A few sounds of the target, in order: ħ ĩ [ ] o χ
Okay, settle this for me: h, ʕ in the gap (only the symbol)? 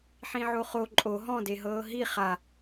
ʕ